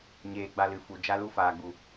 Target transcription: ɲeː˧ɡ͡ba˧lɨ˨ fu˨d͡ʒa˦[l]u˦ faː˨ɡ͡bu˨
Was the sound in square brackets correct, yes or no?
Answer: yes